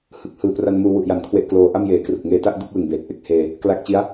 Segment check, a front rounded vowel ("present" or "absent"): absent